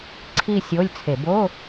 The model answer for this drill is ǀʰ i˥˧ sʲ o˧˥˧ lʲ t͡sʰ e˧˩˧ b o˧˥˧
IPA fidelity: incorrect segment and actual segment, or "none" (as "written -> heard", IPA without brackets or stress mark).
none